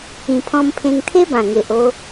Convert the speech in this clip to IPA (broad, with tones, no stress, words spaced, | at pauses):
ĩ˨˩pʰɔ̃˧mpʰẽ˧ŋ t̪ʰe˦bã˨˩ ŋe˨ʔo˧